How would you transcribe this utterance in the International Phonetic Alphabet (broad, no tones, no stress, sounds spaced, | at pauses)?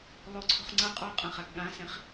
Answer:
lˠ o ǀʰ o̤ χ ŋ͡ǀ ʌ qʼ ɔ qʼ ɐ̃ χ a ɡ ɠ ã s ẽ χ